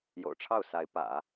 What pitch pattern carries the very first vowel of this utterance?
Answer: low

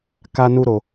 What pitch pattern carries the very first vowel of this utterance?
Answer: high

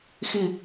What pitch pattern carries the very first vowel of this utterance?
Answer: low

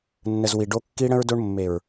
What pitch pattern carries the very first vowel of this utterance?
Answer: low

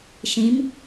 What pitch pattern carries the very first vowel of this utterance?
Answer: rising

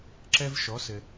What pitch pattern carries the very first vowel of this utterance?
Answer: high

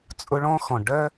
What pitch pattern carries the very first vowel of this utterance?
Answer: high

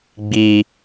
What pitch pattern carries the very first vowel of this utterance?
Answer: low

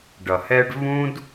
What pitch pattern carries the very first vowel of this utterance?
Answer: low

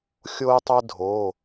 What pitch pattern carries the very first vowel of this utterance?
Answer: high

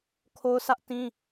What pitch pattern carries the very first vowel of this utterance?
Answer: high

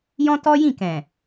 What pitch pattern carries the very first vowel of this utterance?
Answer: high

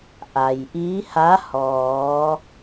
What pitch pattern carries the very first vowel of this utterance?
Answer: low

